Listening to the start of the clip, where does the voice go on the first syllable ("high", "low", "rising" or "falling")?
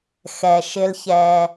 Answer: low